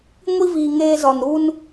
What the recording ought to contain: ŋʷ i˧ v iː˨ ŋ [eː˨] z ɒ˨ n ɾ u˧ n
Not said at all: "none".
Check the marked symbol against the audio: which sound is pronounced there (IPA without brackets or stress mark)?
eː˧